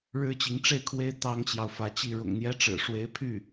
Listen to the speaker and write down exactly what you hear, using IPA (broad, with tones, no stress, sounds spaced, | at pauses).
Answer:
ɻ ɻ̩˥ t͡ɕ i˧˥ ŋ ʈ͡ʂ e˥˩ ɪ̯ kʰ w e˥ ɪ̯ t̪ ɑ˥ ŋ t͡ɕ j ɑ˨ ʊ̯ f ä˧˥ t͡ɕ i˥˩ ɻ ʊ̰˨˩ ŋ n̪ j ɛ˥ ʈ͡ʂ ɻ̩˨˩ ʂ w e˥ ɪ̯ pʰ y˥˩